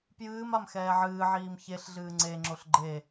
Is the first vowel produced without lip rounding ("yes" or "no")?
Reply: yes